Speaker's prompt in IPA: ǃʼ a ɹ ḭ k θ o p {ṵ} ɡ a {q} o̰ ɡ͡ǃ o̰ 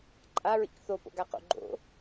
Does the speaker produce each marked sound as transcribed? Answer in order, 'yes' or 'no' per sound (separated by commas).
no, yes